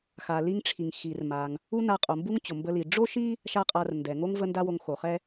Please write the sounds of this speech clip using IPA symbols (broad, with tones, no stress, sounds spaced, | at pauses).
x a˩ l i˧ ŋ ʈ͡ʂʰ i˩ ŋ x i˩ r m a˩ ŋ | u˥ n a˧ qʼ o˩ m b u˥ ŋ t͡ɕ o˩ m b ə˧ l i˩ ɖ͡ʐ o˥ ʃ i˥ | ʃ a˥ qʼ a˧ r n d ɛ˩ ŋ o˥ ŋ v ə˥ n d a˥ w o˧ ŋ x o˩ χ ɛ˥